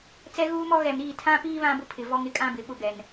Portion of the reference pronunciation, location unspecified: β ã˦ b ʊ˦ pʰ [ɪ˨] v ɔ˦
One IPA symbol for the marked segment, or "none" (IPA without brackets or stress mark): ɪ˨